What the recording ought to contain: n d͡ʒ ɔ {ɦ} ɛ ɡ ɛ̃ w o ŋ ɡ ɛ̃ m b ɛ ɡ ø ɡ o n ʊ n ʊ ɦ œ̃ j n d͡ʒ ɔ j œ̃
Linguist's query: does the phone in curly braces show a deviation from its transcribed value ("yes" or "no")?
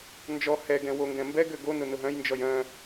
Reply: yes